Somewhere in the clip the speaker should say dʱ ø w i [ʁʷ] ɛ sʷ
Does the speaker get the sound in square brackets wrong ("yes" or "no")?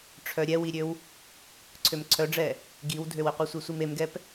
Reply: yes